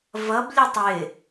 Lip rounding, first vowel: unrounded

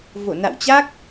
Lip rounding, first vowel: rounded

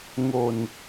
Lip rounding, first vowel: rounded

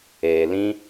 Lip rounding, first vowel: unrounded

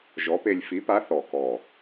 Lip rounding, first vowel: rounded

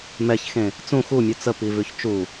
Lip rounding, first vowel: unrounded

